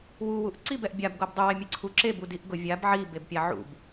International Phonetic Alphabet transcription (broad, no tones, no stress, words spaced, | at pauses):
wuwuʔ ǀibɛʔ bʲabɡob dˤuwɛmʲe ǀʰu ǁebudiʔ ɡʊ vʲab ʕibebpʲa ʕṵb